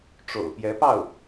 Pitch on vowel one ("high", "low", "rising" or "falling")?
low